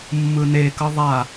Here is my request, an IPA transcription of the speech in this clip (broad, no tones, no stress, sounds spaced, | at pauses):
mː ɯ n e k ʌ ðˤ a